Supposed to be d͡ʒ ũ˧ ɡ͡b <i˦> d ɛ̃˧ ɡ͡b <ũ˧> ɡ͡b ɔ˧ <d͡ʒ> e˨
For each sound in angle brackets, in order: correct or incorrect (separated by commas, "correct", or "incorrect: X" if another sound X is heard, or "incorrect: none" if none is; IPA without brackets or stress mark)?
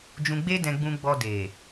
incorrect: e˦, correct, incorrect: d